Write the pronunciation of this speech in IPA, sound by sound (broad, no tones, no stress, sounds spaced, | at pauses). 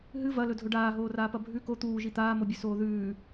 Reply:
ɦ ɨ v ɐ l ɵ dʱ ɵ ɖ aː ɦ oː r aː p ɐ bʱ ʉ k o t̪ uː ʒ i t̪ aː m o bʲ ʉ s oː ð ʉː